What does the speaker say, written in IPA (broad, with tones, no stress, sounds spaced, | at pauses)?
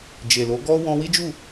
d͡ʒ e˨ l o˨˦ ɡ ɔ˦ w ɔ̃˧ w i˦ d͡ʒ u˦˨